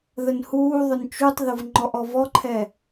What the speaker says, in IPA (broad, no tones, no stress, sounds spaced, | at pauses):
ð ə n h uː ðˤ ʊ n t͡ʃ u tˤ ð ʊ v ŋ͡ǃ ɔ ʔ ɔ v ɔ ǃʰ ɛ